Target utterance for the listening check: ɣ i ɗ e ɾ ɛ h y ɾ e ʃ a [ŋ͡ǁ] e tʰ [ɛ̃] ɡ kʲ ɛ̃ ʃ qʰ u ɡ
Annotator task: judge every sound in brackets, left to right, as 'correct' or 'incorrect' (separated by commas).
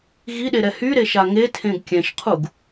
incorrect, incorrect